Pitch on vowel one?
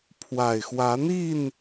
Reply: low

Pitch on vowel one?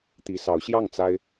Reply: rising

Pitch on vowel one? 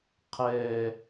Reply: high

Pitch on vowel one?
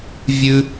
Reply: high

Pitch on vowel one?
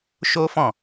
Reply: high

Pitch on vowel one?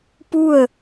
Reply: falling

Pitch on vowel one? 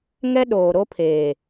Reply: high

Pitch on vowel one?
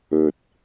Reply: low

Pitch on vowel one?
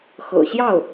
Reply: low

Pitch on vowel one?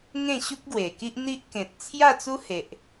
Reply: falling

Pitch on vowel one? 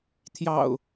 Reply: low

